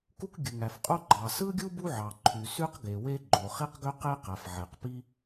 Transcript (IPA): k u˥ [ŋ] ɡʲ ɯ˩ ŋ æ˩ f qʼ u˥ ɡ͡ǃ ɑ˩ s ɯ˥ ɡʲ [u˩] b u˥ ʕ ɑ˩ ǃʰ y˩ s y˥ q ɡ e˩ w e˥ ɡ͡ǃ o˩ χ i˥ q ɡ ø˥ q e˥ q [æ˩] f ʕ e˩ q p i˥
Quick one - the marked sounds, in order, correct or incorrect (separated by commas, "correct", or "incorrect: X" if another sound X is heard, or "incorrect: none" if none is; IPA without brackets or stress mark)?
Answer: incorrect: k, incorrect: u˥, correct